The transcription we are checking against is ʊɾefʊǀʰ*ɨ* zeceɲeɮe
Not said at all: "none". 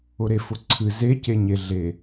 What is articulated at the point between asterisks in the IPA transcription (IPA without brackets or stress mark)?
ɨ